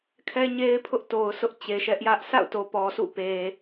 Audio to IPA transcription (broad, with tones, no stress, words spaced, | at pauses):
kʰɛ˦ɲe˦ɪ̯pʰʊ˦ʔ to˨ʊ̯ sʊ˦ʔt͡ɕe˨ʃɛ˦ʔjä˦ʔ sʰa̰˦˨ʊ̯ to˨pɔ˨sʰṵ˦˨pe˨